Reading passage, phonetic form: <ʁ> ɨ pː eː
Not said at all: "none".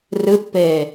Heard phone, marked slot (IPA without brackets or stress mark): r